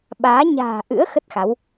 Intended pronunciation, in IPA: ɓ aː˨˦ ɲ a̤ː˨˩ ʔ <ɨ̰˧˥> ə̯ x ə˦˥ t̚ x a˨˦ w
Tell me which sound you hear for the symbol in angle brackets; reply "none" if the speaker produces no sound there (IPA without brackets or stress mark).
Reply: ɨ̰˧˥